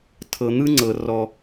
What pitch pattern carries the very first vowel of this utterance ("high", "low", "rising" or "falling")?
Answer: low